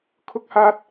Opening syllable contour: high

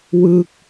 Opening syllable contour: falling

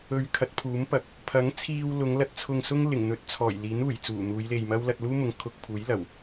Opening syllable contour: low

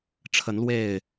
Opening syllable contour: rising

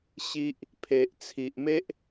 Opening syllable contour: high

